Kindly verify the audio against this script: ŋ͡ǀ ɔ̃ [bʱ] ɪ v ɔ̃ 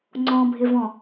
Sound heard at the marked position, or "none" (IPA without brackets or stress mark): bʱ